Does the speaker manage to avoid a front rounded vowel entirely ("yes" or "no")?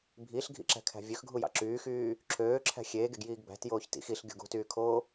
no